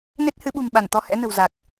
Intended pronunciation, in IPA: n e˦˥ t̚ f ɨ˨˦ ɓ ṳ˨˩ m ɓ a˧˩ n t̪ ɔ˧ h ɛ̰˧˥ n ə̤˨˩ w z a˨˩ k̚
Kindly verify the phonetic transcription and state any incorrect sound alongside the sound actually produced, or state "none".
f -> h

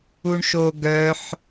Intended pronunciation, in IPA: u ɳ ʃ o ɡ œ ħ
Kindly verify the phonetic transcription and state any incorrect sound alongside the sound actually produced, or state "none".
none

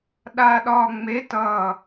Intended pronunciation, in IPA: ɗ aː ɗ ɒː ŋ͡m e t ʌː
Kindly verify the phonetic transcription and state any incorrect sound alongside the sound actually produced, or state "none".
none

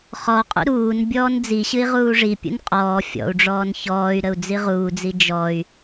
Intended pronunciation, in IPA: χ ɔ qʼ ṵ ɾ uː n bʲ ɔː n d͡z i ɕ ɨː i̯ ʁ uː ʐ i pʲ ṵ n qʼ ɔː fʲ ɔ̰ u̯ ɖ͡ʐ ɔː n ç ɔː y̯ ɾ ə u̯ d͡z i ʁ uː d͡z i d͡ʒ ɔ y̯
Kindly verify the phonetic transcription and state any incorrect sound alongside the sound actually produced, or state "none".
ɨː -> ɨ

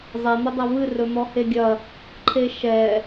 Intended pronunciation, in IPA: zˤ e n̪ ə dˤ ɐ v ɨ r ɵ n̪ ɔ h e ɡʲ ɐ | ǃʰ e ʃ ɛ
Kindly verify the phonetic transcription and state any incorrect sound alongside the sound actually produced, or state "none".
none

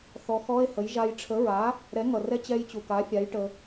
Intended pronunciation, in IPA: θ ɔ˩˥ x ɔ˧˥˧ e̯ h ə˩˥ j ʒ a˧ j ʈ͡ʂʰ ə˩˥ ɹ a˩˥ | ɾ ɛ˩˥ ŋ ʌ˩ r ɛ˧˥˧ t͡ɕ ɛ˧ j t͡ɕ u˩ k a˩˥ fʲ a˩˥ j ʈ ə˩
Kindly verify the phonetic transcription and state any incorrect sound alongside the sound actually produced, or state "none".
none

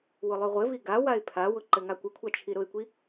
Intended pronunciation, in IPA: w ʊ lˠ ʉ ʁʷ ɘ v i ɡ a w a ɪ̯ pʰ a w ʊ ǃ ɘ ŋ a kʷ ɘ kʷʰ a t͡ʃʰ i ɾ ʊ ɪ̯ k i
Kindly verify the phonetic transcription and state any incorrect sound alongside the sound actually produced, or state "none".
k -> kʷ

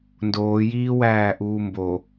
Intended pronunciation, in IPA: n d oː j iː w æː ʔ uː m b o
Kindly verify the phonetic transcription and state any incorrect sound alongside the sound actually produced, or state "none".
none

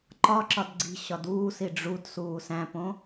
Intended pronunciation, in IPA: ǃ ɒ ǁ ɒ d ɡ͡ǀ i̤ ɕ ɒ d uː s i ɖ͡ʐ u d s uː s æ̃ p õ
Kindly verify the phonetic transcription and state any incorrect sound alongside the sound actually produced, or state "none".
none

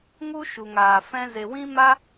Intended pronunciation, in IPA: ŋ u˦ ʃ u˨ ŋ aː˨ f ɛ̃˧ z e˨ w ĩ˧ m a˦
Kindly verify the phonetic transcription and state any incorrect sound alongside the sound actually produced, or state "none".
ĩ˧ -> ĩ˦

